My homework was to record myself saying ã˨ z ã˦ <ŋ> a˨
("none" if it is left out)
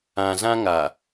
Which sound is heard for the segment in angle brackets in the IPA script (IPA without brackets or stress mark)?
ŋ